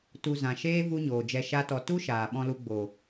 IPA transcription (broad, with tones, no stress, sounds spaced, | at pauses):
t u˧ z ã˨ ʃ eː˦ v u˦ ɲ oː˨ d͡ʒ ɛ˧ ʃ a˦ t ɔ˧ t u˦ ʃ aː˨ ɓ ɔ̃˧ l u˧ ɡ͡b o˨